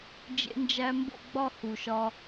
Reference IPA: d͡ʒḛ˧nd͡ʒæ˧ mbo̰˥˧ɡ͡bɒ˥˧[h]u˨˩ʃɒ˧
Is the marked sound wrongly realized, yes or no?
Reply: no